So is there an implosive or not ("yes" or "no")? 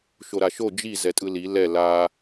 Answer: no